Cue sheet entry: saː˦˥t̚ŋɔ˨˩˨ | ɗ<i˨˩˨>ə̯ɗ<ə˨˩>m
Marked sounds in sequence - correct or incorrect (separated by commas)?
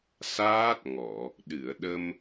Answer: incorrect, incorrect